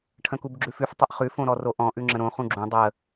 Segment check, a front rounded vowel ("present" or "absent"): absent